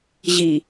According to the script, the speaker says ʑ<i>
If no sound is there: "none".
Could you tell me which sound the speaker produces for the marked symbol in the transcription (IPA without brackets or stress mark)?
i